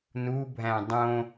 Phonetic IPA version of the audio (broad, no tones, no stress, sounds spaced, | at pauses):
n u bʱ æ̃ dˤ õ